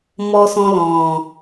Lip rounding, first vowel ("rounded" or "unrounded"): rounded